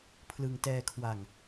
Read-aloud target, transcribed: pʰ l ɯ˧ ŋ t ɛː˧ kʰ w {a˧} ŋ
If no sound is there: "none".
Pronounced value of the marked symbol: a˧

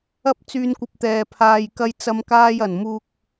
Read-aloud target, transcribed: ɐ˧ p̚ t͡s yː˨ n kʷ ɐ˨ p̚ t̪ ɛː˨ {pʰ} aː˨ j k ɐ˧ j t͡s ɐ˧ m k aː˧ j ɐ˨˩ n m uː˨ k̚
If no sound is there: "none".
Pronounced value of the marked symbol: pʰ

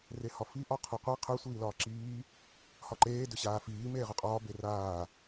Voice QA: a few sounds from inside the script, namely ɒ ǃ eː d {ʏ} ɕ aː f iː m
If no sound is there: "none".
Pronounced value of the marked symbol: ʏ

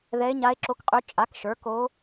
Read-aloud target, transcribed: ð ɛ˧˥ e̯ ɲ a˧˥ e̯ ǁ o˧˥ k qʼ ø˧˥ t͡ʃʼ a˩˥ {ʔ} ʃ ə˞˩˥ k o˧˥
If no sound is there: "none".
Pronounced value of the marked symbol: k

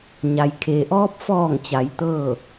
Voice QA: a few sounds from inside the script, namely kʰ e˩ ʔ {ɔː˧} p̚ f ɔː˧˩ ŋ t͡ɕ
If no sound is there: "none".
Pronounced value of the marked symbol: ɔː˧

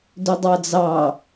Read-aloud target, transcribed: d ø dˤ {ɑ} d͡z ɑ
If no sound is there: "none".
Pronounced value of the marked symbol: ɑ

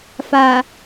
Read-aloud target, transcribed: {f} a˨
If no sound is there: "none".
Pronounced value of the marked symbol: f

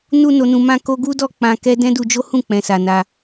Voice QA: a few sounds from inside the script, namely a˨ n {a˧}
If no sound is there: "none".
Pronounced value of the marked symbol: a˧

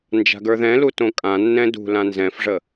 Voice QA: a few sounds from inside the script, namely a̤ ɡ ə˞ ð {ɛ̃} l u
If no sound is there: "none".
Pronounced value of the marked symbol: ɛ̃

